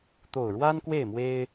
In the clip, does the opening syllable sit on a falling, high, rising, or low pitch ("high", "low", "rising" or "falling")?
low